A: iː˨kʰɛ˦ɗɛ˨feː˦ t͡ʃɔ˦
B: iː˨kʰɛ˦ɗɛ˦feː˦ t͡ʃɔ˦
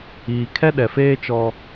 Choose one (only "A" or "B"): A